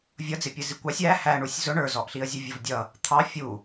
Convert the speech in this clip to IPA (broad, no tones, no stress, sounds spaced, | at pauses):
vʲ ʌ d͡z ɪ pʲ ə z i kʷ ɑ sʲ æ h æ ɳ u sʲ z ʊ ɳ ə˞ z ɔ ʔ ɬ i ə̯ zʲ ʊ vʲ ʌ v dʲ ʌ | t̪ʰ ɑ fʲ u